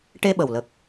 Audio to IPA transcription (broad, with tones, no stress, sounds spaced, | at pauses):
ʈ e˧ ɓ ə˨˩ w l ə˨˩ k̚